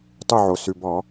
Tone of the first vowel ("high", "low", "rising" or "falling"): falling